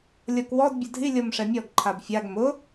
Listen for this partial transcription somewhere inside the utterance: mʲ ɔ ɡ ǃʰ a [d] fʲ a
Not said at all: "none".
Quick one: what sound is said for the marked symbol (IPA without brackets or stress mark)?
b